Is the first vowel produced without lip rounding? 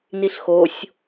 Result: yes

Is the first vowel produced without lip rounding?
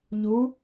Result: no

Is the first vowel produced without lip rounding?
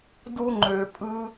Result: no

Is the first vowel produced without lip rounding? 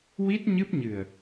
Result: yes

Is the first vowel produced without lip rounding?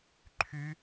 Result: no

